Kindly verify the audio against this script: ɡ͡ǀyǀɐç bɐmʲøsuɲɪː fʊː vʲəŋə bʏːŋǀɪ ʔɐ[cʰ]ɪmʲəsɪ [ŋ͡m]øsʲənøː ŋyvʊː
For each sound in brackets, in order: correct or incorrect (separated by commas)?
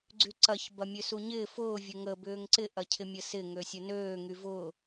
correct, incorrect